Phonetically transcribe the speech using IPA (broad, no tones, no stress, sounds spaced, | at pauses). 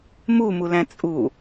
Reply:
m u m u l æ̃ t͡sʼ u